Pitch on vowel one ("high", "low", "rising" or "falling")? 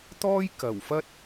high